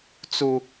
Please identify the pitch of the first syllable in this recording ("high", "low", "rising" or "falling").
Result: low